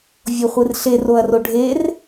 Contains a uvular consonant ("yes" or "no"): yes